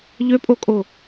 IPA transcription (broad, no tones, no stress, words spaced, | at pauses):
ʎøpʼokʼo